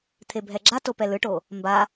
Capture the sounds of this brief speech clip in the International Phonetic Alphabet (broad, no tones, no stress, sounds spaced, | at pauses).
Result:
t̪ʰ e bʱ ɛ ɡ͡ǁ a t o p ɛ l ɯ ʈ o | m b a